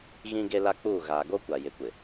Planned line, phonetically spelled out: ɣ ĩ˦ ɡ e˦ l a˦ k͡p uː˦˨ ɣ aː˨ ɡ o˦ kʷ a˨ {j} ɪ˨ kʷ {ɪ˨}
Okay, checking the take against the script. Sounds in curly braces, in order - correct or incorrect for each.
correct, correct

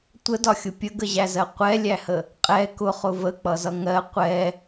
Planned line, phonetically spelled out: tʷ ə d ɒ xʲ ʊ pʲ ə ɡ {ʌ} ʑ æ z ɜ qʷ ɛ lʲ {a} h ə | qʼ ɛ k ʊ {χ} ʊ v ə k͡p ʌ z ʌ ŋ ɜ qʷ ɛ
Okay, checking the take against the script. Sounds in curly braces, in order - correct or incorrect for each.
incorrect: ə, incorrect: æ, correct

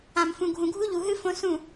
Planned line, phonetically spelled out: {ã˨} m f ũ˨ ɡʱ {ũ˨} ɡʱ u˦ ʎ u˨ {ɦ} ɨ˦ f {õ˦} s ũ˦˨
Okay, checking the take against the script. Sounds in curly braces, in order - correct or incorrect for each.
correct, correct, correct, correct

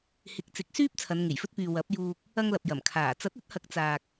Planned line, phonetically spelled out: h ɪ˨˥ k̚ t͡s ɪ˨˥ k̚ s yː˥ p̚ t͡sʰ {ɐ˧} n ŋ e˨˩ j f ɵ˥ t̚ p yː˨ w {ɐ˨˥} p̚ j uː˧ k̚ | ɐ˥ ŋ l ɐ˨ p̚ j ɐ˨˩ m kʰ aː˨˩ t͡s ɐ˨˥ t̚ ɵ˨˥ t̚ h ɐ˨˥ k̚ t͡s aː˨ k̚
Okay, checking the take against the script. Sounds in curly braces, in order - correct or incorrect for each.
incorrect: ɐ˨˧, correct

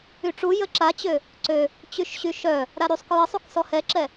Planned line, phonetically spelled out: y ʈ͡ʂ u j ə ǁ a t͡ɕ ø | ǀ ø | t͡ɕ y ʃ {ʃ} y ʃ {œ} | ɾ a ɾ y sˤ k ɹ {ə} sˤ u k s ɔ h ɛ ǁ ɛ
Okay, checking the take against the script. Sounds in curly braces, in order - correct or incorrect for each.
incorrect: ɕ, correct, correct

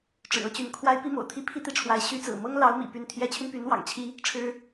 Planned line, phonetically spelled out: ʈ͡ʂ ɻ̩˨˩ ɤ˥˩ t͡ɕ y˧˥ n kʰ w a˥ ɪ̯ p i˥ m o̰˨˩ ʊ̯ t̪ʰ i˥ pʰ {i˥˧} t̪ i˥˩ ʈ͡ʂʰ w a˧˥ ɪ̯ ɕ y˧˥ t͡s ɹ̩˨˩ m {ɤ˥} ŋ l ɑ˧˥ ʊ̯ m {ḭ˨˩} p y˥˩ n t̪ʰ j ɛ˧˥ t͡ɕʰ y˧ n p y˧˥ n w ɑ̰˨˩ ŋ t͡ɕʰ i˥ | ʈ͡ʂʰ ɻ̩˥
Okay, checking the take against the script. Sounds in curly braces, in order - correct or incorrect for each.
correct, correct, correct

